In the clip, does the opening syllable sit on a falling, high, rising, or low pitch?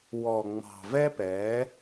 low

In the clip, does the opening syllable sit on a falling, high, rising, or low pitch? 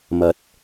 rising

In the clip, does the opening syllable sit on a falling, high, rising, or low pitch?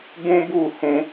high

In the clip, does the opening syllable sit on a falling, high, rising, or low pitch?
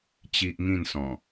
high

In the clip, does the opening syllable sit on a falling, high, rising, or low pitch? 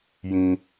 high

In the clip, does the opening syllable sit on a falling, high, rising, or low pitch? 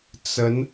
rising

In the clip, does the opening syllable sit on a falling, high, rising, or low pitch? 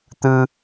high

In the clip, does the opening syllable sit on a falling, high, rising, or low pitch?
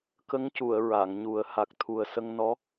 rising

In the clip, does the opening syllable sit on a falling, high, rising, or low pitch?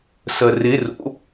low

